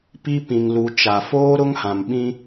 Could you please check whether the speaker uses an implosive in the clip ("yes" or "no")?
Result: yes